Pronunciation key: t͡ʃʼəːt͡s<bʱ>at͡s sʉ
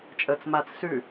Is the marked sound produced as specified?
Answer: no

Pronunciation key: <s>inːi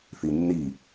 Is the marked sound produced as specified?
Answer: no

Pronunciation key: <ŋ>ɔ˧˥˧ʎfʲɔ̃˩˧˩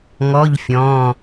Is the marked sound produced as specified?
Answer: yes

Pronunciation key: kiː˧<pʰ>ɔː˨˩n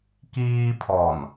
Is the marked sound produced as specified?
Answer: yes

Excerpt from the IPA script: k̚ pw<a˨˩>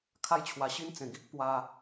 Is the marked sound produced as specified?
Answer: no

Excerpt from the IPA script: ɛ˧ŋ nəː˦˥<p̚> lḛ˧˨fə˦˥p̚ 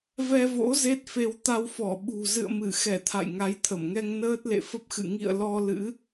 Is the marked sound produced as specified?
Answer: no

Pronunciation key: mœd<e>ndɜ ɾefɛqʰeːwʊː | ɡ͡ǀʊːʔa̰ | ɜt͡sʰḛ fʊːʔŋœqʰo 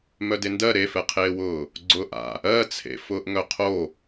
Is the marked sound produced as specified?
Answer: yes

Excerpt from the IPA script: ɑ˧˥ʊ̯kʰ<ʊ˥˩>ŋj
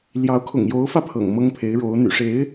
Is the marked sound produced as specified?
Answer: no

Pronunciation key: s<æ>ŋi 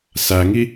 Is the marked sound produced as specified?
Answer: yes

